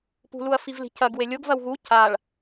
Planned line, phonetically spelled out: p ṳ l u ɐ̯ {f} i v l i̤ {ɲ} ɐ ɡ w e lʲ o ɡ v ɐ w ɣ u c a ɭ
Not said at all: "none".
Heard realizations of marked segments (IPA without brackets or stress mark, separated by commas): f, c